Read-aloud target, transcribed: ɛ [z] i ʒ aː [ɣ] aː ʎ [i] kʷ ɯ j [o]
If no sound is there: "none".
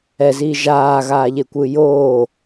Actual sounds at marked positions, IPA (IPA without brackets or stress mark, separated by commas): z, ɣ, e, o